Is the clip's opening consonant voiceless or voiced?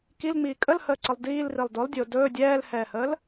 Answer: voiceless